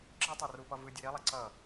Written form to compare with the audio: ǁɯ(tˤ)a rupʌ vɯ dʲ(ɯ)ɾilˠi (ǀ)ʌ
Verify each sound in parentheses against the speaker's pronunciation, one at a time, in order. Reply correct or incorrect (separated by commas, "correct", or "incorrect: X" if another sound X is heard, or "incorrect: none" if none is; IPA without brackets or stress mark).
correct, correct, correct